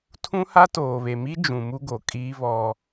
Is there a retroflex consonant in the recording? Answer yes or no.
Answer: no